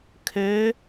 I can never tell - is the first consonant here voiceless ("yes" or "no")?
yes